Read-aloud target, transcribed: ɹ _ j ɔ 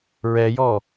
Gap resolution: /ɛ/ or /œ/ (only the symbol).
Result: ɛ